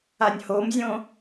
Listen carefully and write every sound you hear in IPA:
a nʲ h o m zʲ õ

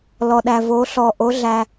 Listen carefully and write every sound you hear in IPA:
l ɔ˨ ɗ æ˨ v o˨˦ ɬ ɔ˨ ʔ o˨˦ ɮ æ˨

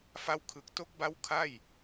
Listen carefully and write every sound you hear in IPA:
f a˧ w kʰ ɯ˨˩ k̚ t o˦˥ k̚ b a˦˥ w kʰ a˥˩ j

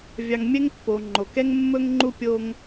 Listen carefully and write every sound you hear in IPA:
vʲ ɑ˨ ŋ mʲ ɛ˥ ŋ pː o˩ ŋ͡ǃ o˩ k ɛ˥ ŋ mː ɵ˥ ŋ ŋ͡ǃ u˥ pʲ o˦ ŋ

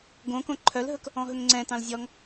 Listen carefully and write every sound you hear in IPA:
ɡ õ k õ ǃʰ œ l ɦ ɵ k | ɔ̃ ɦ ɵ ŋ ŋ͡ǀ ɛ̃ t ɑ̃ l zʲ ɔ ŋ

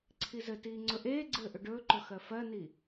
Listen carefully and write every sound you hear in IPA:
ǀʰ i z ɘ t iː ŋ͡ǀ ɵ ʔ eː ɡ͡ǀ ɘː ʔ ɵ ɖ ɵː ǃ ɵ x ɜ f ɜ n i

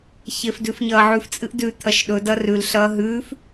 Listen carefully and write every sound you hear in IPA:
ç e f d ʉ f ɲ ɐː ʕ ʉ f t͡sʼ ɨ ʔ d ʉ t̪ʰ ɐ ʃ ɗ ɵ d ɐ r ʉ l ɬ ɐː ɦ ʉː f

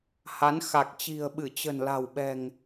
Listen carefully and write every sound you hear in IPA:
h a˨˦ n x a˨˩ k̚ t͡ɕ i̤˨˩ ə̯ ɓ ɨ˧˩ t͡ɕ ə̤˨˩ n l a̤˨˩ w ɓ ɛ̤˨˩ ŋ

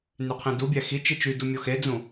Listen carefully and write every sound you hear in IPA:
n y qʰ ẽ d u bʲ æ x i t͡ʃ i t͡ʃ y d u mʲ o x e d͡z ũ

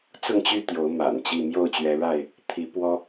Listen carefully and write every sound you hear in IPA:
t͡s ʊ˥˨ ŋ t͡ɕ y˥˨ t̪ j o˨˦ ʊ̯ m a̰˨˩ n t͡ɕ i˥˨ m j o˥˨ ʊ̯ t͡ɕ ɥ ɛ˨˦ ɻ a˥˨ ɪ̯ | t̪ʰ i˨˦ p w ɔ˦

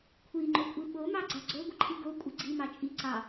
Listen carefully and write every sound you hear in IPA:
kʷʰ i ŋ͡ǃ o kʷʼ i ɓ o m ɑ ɡ͡ǀ a ɡ͡ǀ o ɡʷ ə ǃʰ i ɡ o kʷʼ ə ɡ͡ǀ i m ɑ t͡ʃʼ i ǀ ɑ

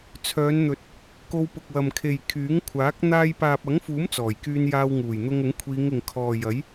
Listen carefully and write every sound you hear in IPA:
t͡sʰ œː˨˧ n n̪ ɵ˨ t̚ | k o˧ w p ʊ˨ k̚ w ɐ˨ m kʰ e˨ j kʰ yː˨˥ ŋ kʷʰ aː˨˥ k̚ n̪ aː˧ j p aː˨ p̚ ɐ˨˥ ŋ f uː˨˥ m t͡s ɔː˨˩ j k yː˧ n j aː˧ w ŋ uː˨˩ j n̪ ʊ˧ ŋ ʊ˨˥ ŋ kʷʰ iː˨˧ ŋ ɪ˨ ŋ kʰ ɔː˨ j ɐ˨˥ j

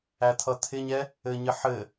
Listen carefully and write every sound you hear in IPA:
æ t̪ʰ ʌ t̪ʰ ɪ ɲ ɛ | ɘ ɲ ɘ ħ ɘ

